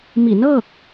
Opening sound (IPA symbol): m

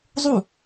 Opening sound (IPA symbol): zˤ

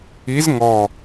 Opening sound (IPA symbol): i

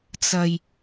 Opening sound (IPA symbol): t͡s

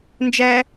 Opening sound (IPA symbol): n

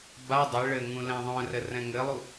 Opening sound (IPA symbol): b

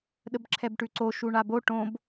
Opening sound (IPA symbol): ɗ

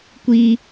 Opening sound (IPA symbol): kʷ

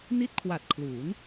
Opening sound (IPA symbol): n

